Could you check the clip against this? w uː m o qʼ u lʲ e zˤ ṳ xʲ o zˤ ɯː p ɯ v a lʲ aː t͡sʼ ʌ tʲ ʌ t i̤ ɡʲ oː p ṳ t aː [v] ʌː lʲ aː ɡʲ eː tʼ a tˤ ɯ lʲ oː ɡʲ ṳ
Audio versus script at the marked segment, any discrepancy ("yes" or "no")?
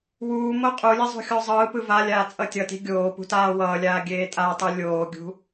yes